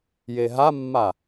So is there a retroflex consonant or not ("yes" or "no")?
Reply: no